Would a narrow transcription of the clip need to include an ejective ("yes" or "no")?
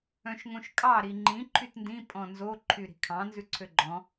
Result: yes